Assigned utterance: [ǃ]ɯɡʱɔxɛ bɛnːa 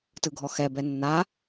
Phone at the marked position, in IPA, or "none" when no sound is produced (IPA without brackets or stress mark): t